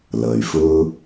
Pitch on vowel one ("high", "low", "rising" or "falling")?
low